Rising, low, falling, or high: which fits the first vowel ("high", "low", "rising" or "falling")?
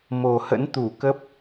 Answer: low